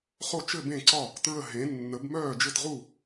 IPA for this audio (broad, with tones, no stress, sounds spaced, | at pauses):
χ o˥˨ t͡ʃ ɘ˥˨ b ẽ˥˨ ǀ ɒ˥˨ | t ɹ ə˥˨ ɦ ẽ˨˥ nː ə˨˥ b m œː˥˨ d͡ʒ ɘ˥˨ t ʁ u˥˨